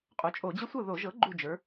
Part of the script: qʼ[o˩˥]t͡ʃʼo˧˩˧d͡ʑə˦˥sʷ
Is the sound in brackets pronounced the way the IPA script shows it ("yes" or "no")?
yes